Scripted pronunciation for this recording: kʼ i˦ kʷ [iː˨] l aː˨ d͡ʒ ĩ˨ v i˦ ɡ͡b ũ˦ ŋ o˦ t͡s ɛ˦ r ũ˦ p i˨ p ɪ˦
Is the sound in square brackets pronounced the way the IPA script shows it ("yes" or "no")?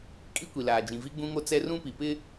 no